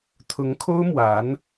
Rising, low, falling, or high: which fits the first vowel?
rising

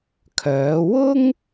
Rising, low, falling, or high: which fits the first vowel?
rising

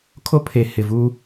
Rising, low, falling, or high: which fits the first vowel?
high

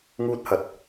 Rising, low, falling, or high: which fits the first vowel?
high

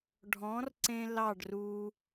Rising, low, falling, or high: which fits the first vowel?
rising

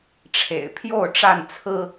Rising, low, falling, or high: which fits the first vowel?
low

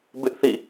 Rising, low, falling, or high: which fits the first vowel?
high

